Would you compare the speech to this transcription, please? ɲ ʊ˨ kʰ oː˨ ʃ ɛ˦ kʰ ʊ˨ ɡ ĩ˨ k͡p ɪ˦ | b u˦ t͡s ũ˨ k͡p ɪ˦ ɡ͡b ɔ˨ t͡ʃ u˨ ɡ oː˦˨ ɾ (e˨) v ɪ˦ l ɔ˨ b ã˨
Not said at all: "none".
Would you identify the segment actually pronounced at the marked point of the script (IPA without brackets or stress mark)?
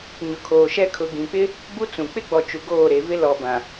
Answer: e˨